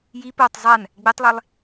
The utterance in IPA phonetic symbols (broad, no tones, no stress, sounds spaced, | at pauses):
j i p o tˤ zˤ a n | ɡ͡b e tˤ lˠ e lˠ